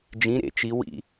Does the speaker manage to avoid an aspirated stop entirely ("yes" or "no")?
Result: yes